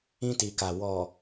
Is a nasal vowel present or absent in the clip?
present